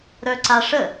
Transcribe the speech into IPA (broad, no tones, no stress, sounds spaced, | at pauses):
ɾ œ ǀ a ʂ ə